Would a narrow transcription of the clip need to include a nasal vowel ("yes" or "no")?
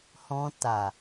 yes